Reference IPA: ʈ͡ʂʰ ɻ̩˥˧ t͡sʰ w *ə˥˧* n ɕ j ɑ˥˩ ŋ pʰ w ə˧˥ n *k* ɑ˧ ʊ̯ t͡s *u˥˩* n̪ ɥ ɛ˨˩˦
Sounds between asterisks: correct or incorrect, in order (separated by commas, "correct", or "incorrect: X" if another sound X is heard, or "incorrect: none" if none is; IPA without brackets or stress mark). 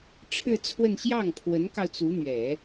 correct, correct, incorrect: u˧˥